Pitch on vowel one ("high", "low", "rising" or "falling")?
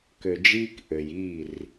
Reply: low